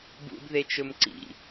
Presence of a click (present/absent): present